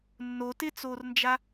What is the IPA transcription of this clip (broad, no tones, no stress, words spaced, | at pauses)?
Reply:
nːotɪːt͡soːrnd͡ʒa